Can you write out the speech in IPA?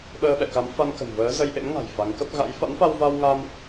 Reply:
ɓ əː˧ ɓ ɛ̰˧˨ k a˨˦ m f a˧ n k ə̤˨˩ n v əː˨˦ z ə˧ j ʔ ḛ˧˥ m ŋ a̤˨˩ j f a˨˦ ŋ k ə˦˥ p̚ ɣ a̰˧˥ j f a̰˧˥ n f a˧ w v a˧ w ŋ a˧ m

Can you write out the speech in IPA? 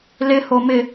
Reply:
l ɪ h o m ɪ

